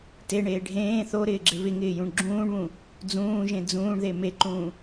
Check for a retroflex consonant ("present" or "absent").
present